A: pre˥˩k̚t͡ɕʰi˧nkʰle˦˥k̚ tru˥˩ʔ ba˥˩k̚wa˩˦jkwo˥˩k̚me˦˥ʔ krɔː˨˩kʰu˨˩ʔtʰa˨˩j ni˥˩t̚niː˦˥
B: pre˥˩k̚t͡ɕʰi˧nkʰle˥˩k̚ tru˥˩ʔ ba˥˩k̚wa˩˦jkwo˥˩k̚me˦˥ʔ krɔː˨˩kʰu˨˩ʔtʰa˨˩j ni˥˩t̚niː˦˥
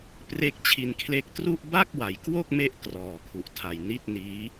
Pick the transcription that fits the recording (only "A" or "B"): B